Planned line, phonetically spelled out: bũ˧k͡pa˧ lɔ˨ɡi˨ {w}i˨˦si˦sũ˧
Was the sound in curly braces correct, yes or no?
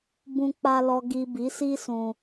no